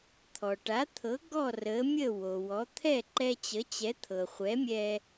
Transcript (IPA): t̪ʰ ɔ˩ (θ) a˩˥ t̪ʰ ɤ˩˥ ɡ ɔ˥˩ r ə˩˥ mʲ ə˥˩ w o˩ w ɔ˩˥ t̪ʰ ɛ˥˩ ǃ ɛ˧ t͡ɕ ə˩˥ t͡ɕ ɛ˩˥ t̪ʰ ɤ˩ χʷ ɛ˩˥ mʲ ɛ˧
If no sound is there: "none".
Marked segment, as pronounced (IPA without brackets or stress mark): ʈ